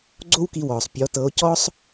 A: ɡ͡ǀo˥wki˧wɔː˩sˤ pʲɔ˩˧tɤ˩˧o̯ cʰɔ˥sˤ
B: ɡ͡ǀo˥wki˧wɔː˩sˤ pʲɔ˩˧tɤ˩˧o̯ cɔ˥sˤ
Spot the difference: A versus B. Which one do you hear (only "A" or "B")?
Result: B